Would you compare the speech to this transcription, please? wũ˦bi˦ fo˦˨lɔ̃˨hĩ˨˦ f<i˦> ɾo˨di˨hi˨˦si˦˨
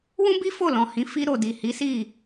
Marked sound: incorrect: i˧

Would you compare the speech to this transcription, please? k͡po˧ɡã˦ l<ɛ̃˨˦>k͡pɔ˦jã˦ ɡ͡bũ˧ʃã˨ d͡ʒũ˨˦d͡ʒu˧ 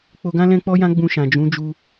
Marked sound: incorrect: ɛ̃˦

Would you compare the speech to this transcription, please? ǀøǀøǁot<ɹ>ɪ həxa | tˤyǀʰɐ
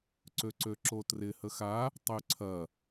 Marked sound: incorrect: r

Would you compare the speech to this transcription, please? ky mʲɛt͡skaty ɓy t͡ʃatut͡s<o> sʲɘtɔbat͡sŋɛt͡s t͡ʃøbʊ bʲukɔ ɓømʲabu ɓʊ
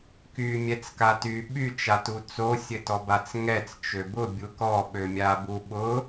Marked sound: correct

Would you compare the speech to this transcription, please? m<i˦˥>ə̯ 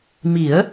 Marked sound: incorrect: i˨˩˦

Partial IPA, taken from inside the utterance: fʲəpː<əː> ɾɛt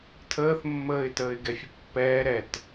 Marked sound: incorrect: ɛː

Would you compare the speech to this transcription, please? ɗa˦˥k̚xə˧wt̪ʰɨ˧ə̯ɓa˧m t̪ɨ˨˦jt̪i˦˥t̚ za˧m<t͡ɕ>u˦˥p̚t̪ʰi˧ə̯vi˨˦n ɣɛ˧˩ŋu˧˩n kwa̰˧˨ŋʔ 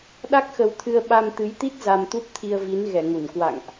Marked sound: incorrect: t̪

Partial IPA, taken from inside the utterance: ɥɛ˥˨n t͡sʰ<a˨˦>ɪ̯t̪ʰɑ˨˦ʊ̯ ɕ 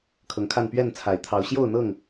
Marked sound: incorrect: a˨˩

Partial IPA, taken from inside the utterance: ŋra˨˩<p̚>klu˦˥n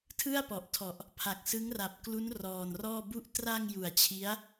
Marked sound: correct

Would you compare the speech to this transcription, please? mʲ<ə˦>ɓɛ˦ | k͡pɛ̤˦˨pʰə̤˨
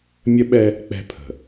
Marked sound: correct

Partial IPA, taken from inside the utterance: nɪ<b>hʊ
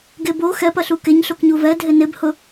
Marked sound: correct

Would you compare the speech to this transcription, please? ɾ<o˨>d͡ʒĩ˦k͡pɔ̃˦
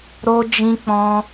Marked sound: incorrect: o˦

